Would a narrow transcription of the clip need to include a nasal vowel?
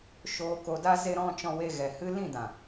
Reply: yes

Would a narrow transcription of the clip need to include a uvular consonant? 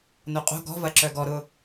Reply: yes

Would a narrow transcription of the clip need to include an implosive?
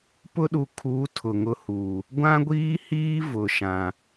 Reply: yes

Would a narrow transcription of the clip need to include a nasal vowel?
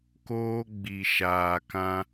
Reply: yes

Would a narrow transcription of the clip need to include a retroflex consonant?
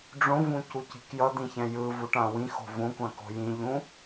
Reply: yes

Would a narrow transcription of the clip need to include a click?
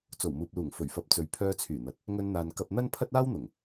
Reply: no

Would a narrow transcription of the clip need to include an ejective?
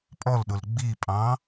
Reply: yes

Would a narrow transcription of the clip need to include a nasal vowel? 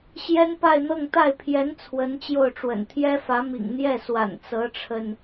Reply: no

